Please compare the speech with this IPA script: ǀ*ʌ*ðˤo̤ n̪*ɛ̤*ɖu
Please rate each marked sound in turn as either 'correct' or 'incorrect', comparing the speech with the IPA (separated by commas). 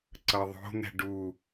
correct, correct